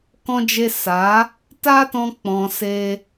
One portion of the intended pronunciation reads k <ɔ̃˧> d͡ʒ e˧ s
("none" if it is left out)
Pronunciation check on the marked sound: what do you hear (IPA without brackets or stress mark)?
ɔ̃˧